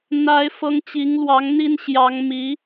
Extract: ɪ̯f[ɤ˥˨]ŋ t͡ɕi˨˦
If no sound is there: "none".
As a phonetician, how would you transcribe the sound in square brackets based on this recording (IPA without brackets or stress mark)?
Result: ɤ˦